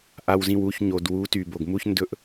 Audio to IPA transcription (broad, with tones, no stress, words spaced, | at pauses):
ʔa˨wzĩ˨wu˨ç ɲo˨dwu˨˦ ty˨bo˨ɡmu˦ç ndɵ˦ʔ